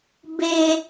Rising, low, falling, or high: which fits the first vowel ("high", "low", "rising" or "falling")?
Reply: low